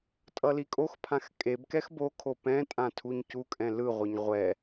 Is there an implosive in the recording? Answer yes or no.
no